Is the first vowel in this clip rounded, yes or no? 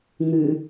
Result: yes